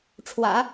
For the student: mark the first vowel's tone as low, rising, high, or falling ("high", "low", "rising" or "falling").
low